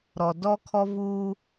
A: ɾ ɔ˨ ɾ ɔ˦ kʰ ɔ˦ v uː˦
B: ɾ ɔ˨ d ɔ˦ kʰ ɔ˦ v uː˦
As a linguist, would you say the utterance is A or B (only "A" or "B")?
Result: B